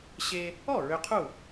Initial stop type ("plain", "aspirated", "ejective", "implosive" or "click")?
aspirated